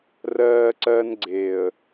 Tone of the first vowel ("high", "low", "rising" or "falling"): high